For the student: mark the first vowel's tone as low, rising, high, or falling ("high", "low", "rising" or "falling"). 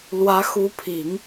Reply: rising